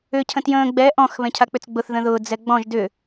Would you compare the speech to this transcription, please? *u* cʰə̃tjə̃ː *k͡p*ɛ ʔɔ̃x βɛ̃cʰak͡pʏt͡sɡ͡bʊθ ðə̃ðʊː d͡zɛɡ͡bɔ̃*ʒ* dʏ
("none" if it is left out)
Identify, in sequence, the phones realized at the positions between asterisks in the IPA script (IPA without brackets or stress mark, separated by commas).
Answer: ʏ, ɡ͡b, ʒ